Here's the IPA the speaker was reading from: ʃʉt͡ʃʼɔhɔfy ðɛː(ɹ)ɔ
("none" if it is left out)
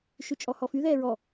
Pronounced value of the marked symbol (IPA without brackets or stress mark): ɹ